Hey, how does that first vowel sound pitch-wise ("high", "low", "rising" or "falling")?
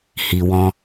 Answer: low